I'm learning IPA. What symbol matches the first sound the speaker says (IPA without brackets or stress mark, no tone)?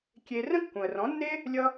kʲ